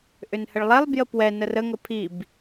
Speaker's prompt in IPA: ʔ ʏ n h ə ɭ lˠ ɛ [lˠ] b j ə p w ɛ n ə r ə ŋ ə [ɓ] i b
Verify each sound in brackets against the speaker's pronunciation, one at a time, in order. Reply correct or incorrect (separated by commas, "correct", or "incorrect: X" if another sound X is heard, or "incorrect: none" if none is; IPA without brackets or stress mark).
correct, incorrect: pʰ